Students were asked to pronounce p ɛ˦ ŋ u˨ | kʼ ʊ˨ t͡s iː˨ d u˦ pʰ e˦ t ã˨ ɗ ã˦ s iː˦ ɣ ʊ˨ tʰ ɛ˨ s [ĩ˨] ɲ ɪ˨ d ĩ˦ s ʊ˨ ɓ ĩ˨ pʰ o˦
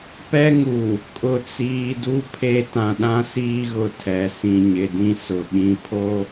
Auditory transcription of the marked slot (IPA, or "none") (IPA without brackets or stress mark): ĩ˨